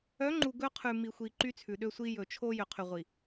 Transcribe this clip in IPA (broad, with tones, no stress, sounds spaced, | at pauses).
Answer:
œ˨˦ ŋ͡ǃ u˨ ɡ ɵ˦ qʰ ʉ˨ m i˨ xʷ i˨ ǃ y˦ t͡sʰ ʉ˨ ɗ ø˦ sʷ i˦ j ɵ˨ t͡ʃʰ o˦ j ø˨ qʰ y˨ ʁʷ i˨